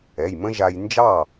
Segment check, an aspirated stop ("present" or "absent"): absent